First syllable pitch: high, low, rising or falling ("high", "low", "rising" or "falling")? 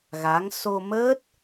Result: rising